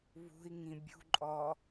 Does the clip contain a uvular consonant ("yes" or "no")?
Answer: no